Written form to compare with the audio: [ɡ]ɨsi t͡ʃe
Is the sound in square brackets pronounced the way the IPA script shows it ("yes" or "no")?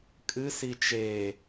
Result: no